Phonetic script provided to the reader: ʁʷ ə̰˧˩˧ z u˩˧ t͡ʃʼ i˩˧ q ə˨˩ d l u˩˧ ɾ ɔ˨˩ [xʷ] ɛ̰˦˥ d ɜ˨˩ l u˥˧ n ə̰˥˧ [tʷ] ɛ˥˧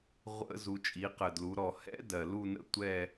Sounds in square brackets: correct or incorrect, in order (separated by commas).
incorrect, correct